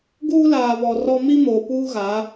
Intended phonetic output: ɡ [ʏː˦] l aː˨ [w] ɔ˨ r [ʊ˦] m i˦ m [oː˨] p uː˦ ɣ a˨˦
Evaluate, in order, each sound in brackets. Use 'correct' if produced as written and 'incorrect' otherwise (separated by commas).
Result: incorrect, incorrect, incorrect, correct